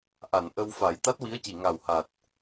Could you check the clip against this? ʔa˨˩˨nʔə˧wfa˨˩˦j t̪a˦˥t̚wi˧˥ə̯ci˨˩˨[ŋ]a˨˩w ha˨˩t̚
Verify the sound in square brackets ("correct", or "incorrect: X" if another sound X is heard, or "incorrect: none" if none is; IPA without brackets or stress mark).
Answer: correct